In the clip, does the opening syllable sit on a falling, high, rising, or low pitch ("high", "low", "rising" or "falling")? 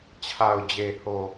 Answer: low